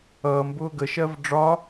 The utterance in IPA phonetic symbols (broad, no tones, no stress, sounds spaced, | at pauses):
ʌː m b ʊː ɡ ə ʃ ɜ v ɖ͡ʐ ɒ